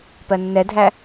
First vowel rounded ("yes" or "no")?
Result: no